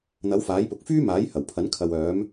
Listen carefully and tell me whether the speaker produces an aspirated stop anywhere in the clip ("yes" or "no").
yes